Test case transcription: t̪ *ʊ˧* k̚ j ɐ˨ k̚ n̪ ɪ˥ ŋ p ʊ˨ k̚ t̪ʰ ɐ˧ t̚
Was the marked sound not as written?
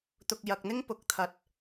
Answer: no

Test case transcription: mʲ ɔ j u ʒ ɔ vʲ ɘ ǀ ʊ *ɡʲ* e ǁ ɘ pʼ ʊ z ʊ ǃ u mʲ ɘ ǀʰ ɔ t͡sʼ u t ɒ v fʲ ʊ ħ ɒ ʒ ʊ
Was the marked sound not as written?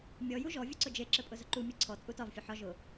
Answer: yes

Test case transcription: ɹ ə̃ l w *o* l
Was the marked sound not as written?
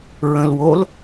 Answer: no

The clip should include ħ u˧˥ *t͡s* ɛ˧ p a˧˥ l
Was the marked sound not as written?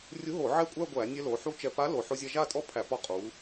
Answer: yes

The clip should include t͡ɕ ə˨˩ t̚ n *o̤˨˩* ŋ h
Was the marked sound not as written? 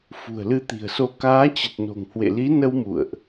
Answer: no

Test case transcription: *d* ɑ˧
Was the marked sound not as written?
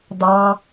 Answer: no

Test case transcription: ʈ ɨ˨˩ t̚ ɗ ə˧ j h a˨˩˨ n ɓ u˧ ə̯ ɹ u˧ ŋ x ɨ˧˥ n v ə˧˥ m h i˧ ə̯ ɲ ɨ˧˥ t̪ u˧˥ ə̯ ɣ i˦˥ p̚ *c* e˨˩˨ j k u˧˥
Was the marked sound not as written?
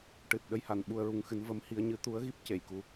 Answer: no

